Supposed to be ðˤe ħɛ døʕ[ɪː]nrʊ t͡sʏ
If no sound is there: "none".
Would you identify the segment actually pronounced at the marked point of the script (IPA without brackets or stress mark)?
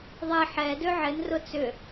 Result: ɪ